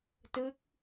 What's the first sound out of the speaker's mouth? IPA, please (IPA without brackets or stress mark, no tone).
t